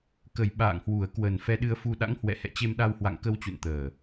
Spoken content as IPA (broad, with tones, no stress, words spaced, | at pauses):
kə˨˩j ɓa̰ː˧˨ŋhwu˨˩ə̯ kwə˨˩nfɛ˧ɗɨ˧ə̯fu˧ ɗa̰˧˥ŋhwɛ̰˧˨hɛ̰˧˨ t͡ɕe˧mɗa˧whwa̰˧˨ŋ kə˧wt͡ɕṵ˧˨nt̪əː˨˩